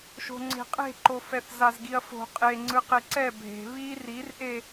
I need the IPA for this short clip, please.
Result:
ʃ o̤ ŋ͡ǀ e̤ qʼ e̤ ǃ o f ɛ θ z a z ɡ i ɐ̯ f o̤ qʼ e ŋ͡ǀ ɯ q e ǀ ɛ bʱ e̤ β i r i r ʔ e

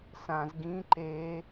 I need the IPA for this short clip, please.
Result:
s ã z ɡ ĩ ǃ e

